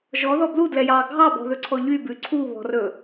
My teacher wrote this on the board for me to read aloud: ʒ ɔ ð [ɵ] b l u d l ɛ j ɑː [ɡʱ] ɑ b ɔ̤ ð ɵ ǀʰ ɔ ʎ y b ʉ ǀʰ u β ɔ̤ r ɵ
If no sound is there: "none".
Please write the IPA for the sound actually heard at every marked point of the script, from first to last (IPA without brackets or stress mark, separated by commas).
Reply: ɔ, ɡʱ